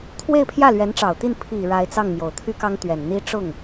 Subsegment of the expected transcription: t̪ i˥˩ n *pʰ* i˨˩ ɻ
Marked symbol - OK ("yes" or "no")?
yes